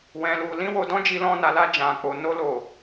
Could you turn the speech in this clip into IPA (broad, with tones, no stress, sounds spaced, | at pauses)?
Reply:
w ɛ̃˨ l u˨ l ĩ˧ w o˨ d ɔ̃˧ d͡ʒ i˧ l ɔ̃˧ n a˨ l a˧ d͡ʒ ã˨ k͡p o˨ n o˧ l o˨